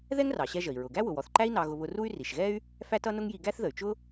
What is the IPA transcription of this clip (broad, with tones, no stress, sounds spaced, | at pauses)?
ð ɛ˥ ŋ r ɑ˩ ɕ ɛ˧ ʒ ə˩ i̯ ɹ ʊ˩ ɡ æ˥ w ʊ˩ w ɔ˩ θ ǃ æ˥ i̯ n ɑ˧ ɣ ʊ˧ β ʊ˧ r u˥ y̯ r i˩ ʃ ɣ ɛ˥ y̯ | f æ˥ t ʌ˥ n ʊ˥ ŋ j i˧ ɡ æ˥ θ ð ə˩ y̯ t͡ʃ ʊ˥